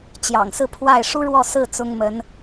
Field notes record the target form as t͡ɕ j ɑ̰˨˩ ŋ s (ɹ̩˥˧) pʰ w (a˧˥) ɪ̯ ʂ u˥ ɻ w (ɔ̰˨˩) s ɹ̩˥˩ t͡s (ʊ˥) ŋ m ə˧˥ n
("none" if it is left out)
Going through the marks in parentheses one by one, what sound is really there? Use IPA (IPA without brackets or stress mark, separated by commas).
ɹ̩˥˧, a˥˩, ɔ˥˧, ʊ˥